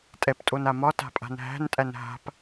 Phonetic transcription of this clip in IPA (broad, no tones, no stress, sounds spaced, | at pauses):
tʼ ɛ p tʼ o n a m ɒ t a̤ pʼ a̤ n ɦ æ̤ n tʼ æ n ɦ a̤ p